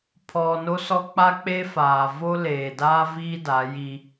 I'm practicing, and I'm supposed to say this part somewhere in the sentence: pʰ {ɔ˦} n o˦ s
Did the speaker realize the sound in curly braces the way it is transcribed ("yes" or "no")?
no